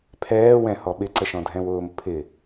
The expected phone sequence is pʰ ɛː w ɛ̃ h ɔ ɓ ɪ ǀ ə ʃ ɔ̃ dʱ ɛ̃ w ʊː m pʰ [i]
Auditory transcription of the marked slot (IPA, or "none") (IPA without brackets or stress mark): ɪ